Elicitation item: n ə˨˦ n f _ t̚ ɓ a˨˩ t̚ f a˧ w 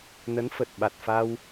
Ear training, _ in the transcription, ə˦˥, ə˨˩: ə˨˩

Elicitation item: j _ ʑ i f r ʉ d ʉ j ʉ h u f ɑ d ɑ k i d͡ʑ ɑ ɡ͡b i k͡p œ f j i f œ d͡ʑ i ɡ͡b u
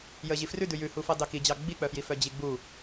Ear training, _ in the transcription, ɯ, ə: ə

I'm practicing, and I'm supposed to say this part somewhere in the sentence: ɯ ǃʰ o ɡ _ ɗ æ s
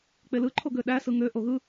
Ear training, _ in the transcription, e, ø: ø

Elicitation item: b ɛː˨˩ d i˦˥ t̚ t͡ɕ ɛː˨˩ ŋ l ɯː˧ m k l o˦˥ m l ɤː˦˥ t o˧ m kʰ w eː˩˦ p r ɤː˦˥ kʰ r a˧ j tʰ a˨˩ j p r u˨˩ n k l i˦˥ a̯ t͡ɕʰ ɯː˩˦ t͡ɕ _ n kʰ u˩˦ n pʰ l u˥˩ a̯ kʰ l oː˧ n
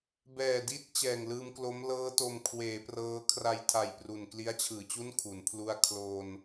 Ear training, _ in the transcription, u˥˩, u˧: u˥˩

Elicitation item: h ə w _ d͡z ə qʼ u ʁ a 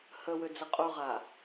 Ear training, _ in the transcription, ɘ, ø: ø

